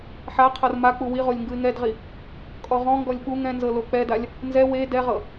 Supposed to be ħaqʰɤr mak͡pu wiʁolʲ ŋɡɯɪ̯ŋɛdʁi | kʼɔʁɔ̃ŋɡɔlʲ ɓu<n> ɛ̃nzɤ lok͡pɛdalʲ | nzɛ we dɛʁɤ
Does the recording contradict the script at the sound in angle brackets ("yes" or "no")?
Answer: yes